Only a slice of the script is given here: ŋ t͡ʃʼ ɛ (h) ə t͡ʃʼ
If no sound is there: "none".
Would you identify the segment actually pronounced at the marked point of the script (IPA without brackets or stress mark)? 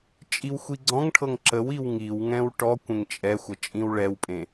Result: xʷ